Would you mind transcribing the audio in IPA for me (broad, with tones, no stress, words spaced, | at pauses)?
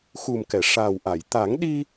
xu˨˩mkɛ˨˩˨ʂaː˨˩wʔa˨˩˨j t̪a˨˩˦ŋɗi˧